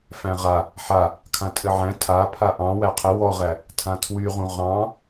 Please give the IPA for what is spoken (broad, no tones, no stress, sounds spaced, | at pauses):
f æ̃ ʁ a | ħ a | kʰ ã tʼ ɘ ʕ æ̃ tʰ a pʰ a ʔ ɑ̃ w æ qʰ ə w ɔ ʁ æ | tʰ ã tʰ w y ʁ ũ ʁ ɑ̃